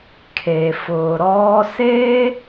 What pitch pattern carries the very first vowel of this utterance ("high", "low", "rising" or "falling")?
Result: low